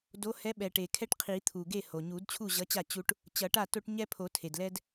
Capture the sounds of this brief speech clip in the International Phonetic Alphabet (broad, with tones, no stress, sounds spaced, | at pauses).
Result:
d o˨˥ h ɛ˨˥ ɓ ɛ˩ ʈ e˩ kʰ ɛ˦ ʈ qʰ i˨˩˦ t̪ʰ u˩ ɡ e˥˩ h o˩ ɲ u˨˩˦ d t͡ɕʰ u˥˩ ʑ ʌ˨˥ t͡ɕ a˥˩ t͡ɕ u˦ ʈ | t͡ɕ ʌ˨˩˦ ʈ a˥˩ t o˦ ʈ ɲ ɛ˦ pʰ o˨˩˦ tʰ e˩ d l ɛ˦ d